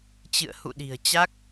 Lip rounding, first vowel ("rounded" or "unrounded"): unrounded